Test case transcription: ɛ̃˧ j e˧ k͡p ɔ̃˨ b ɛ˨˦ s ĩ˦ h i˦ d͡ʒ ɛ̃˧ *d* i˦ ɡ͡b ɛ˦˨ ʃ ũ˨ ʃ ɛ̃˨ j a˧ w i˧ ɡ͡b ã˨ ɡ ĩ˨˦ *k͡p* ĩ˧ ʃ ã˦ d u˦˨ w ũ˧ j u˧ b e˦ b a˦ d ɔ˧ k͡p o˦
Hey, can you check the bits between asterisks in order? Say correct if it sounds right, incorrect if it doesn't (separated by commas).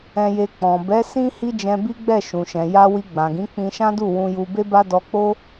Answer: incorrect, correct